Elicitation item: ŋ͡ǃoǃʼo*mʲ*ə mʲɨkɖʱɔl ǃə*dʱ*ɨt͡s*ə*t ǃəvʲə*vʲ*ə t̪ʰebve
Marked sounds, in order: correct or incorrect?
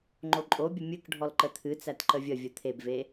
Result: incorrect: bʲ, incorrect: t̪ʰ, incorrect: æ, correct

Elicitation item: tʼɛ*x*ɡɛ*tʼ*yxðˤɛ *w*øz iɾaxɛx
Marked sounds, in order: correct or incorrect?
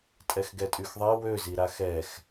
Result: correct, correct, correct

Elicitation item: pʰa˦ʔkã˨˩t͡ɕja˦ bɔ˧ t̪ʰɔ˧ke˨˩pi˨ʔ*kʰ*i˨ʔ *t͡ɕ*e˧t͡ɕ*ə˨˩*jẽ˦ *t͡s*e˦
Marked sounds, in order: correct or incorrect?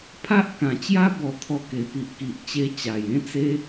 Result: incorrect: k, correct, incorrect: a˨˩, correct

